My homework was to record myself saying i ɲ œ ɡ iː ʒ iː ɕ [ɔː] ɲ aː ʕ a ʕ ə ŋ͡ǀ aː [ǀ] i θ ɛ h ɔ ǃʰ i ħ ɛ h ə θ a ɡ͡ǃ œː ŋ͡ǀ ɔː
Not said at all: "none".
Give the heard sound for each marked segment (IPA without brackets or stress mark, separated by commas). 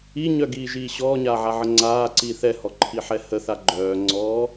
ɔː, ǀ